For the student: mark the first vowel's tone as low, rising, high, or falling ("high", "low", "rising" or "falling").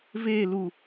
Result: falling